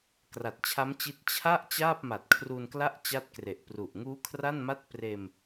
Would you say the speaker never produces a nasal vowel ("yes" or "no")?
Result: yes